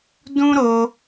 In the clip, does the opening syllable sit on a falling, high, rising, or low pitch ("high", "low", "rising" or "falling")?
high